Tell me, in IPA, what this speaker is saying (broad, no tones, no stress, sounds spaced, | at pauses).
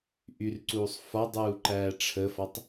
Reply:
ʔ y r ǀ uː sˤ f ɒ dˤ uː ǃ æː ʈ͡ʂʰ ə f ɒ tˤ